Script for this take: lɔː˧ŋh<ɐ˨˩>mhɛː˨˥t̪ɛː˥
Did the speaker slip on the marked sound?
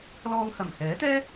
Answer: no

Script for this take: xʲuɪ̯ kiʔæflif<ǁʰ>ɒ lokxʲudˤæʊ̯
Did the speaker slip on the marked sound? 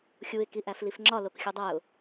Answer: yes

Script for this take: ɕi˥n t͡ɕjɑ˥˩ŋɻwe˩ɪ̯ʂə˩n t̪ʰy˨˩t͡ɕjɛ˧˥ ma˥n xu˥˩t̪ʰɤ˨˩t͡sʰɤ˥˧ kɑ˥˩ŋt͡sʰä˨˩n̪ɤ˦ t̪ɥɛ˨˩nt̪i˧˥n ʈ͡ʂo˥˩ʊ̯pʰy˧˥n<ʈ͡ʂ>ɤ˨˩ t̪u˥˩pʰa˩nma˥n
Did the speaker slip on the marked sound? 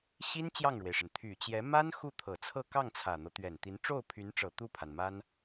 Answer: no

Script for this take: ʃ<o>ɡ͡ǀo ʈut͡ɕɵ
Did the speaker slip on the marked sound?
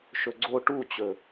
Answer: yes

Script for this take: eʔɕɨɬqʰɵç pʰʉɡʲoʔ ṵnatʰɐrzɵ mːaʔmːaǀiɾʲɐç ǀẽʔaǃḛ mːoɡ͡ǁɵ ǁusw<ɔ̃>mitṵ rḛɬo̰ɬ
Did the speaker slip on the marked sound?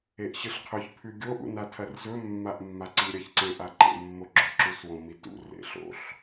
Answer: yes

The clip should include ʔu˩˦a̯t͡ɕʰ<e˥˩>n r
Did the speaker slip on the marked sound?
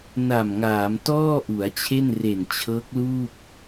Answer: no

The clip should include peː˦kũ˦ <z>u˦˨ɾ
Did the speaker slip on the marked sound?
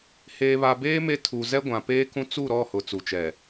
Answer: yes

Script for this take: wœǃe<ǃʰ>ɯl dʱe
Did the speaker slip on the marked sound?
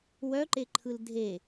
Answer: no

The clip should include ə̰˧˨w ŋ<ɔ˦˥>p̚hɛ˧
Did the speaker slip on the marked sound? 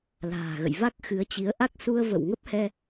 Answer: yes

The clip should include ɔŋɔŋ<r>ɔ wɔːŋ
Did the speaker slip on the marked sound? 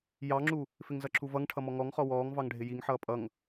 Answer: yes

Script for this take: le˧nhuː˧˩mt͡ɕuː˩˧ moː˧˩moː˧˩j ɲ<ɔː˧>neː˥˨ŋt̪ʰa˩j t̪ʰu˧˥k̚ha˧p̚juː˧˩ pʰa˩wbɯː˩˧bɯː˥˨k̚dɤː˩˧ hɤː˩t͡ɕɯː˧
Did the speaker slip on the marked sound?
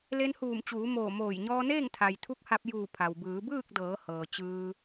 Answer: no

